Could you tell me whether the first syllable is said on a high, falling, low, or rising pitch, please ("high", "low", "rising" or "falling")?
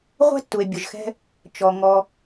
high